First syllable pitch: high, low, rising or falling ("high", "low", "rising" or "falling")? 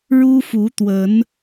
high